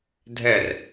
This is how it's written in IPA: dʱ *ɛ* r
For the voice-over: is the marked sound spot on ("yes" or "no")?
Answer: yes